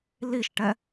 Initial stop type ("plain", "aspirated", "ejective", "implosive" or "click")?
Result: plain